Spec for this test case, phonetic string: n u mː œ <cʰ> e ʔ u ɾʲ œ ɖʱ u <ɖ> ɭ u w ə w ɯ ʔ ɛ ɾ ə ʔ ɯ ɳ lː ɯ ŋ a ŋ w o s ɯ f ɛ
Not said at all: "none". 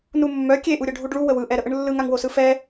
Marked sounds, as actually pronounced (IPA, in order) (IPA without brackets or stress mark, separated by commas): kʲ, ɖ